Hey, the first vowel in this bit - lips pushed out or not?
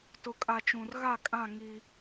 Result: yes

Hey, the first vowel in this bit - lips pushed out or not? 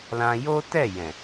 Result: no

